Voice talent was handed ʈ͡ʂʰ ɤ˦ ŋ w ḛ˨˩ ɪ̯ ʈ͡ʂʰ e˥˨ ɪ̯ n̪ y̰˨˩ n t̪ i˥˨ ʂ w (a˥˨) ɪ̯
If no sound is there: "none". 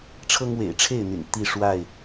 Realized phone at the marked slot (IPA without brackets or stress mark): a˥˨